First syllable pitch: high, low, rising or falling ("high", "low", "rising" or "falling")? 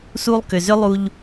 high